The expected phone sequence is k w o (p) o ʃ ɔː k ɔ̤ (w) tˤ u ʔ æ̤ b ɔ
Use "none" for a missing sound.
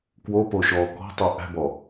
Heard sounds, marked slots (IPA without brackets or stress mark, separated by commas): p, none